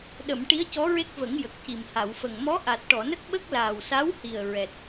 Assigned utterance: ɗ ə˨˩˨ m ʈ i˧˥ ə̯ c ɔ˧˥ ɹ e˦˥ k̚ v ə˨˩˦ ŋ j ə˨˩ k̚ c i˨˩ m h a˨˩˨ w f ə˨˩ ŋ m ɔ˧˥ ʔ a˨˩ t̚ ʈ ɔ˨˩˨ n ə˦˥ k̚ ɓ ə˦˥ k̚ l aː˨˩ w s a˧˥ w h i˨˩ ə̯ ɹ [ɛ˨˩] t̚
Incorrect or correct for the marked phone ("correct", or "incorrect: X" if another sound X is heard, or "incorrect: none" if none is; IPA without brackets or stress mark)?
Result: correct